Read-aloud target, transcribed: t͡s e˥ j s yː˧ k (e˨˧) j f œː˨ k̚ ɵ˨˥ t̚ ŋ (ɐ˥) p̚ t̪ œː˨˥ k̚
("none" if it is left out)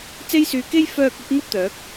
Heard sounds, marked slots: e˥, ɐ˥

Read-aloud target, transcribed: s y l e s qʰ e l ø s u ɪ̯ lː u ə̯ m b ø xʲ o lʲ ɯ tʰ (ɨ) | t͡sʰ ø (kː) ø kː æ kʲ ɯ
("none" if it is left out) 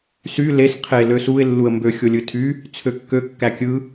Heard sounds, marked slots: y, kː

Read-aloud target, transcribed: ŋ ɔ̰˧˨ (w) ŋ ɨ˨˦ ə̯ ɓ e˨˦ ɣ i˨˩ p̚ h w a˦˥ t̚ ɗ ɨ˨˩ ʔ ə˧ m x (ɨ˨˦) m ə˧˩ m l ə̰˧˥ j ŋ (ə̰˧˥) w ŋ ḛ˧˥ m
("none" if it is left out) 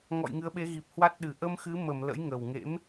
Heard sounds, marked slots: j, ɨ˨˦, ə˨˩

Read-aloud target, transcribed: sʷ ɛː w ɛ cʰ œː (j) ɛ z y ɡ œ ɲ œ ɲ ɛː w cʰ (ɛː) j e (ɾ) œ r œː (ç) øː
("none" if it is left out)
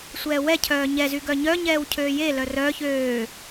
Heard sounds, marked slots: ɲ, øː, l, ç

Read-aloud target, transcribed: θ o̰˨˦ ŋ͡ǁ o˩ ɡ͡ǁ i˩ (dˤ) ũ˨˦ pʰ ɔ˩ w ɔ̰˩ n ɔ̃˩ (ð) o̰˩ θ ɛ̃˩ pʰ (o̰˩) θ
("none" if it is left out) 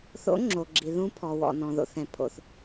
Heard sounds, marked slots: ð, ð, o̰˩

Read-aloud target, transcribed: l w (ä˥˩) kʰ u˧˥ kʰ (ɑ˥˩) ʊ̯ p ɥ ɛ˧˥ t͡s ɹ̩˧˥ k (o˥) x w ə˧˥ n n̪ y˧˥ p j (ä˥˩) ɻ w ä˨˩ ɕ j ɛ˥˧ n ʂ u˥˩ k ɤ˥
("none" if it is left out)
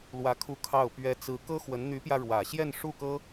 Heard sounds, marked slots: ä˧˥, ɑ˥˩, ɤ˥, ä˧

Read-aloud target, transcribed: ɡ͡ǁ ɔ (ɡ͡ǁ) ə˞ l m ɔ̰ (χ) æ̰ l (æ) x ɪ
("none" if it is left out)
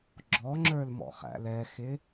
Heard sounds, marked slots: ŋ͡ǁ, χ, ɛ

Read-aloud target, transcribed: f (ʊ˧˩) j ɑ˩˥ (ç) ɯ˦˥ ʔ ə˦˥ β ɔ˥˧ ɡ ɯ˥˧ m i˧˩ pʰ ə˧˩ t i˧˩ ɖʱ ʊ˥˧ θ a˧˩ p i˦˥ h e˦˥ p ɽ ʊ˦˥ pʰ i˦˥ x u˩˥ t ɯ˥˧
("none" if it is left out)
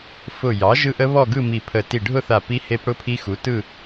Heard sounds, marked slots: ʊ˧˩, ʒ

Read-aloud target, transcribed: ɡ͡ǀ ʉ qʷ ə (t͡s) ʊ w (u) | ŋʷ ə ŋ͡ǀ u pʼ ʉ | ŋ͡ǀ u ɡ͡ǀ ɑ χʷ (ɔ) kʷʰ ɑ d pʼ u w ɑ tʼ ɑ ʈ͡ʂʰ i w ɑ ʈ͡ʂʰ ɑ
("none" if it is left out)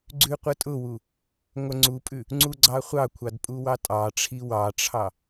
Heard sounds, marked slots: tʼ, u, ɑ

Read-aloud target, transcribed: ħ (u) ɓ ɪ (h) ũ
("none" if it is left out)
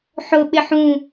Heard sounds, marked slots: ʊ, ħ

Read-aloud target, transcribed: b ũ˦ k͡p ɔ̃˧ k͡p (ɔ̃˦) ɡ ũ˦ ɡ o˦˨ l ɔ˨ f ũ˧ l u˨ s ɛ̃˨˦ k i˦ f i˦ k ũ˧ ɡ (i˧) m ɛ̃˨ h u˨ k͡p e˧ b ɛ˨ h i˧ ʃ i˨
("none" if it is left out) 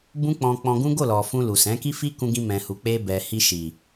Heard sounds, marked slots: ɔ̃˧, ĩ˧

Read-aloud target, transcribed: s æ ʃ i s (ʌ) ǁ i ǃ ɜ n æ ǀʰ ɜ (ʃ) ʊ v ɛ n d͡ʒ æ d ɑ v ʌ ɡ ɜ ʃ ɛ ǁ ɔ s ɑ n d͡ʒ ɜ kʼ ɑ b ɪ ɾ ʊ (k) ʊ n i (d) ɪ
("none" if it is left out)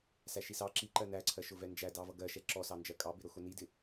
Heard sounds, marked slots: ɑ, ʃ, x, d

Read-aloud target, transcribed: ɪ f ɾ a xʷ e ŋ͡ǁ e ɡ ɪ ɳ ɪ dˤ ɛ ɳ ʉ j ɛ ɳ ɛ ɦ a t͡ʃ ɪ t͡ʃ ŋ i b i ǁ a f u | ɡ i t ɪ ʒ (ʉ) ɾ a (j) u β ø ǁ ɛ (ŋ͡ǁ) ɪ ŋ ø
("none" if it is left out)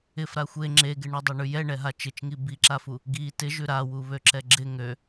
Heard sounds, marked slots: ʉ, w, ɡ͡ǁ

